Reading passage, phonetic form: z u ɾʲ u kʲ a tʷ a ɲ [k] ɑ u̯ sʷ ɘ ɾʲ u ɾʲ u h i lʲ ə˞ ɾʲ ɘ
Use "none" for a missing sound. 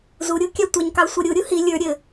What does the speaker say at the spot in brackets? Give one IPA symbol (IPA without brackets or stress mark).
k